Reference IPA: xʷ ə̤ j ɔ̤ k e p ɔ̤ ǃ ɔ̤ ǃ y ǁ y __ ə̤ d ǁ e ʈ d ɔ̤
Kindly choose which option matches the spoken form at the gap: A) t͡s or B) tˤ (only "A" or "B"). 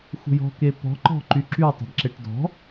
B